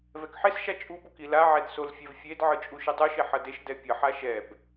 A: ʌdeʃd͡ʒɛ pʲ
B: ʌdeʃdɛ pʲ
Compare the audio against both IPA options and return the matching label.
B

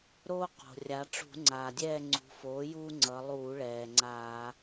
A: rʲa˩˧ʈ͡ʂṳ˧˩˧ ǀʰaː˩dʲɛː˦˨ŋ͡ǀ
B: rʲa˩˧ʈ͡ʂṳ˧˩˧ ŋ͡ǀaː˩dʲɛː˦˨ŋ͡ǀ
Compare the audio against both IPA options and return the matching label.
B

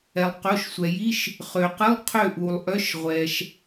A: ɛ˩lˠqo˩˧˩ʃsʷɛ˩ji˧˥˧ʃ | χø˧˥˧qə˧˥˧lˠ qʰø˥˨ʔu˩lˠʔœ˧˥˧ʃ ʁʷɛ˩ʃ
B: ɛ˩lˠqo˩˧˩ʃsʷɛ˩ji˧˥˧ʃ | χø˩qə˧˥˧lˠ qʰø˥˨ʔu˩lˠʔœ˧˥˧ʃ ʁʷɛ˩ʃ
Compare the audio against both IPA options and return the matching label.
B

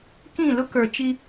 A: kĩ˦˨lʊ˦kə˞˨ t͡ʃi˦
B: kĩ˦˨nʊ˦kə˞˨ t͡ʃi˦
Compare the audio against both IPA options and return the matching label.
A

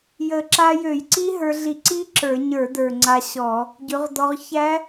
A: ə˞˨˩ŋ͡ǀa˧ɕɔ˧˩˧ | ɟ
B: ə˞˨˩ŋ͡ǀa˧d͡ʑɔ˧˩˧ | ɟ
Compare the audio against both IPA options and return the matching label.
A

